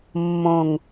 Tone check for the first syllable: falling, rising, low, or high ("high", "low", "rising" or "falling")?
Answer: low